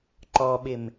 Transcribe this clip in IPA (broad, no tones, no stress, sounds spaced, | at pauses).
ǃ ɔ ɓ ɪ m